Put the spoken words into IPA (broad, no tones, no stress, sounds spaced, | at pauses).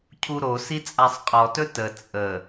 cʰ u ɾ o s i t͡sʼ a sˤ qʼ ɔ t ɵ t ə t͡sʼ ə